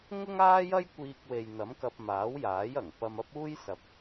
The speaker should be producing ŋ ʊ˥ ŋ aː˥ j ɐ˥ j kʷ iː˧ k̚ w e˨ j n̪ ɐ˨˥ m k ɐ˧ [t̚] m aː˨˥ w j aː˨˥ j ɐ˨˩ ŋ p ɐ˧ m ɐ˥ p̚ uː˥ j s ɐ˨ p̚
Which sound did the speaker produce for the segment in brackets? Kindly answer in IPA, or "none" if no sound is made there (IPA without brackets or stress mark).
p̚